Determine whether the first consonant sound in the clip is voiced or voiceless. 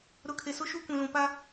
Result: voiced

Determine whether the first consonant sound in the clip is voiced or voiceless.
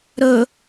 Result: voiced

